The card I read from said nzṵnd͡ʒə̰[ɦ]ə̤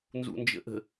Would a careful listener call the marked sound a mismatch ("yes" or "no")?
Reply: yes